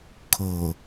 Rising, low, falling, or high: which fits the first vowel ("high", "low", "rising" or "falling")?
low